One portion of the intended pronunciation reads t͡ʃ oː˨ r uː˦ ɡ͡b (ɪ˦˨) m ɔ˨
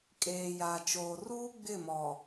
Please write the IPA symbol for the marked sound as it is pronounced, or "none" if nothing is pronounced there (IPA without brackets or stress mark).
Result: ɪ˦˨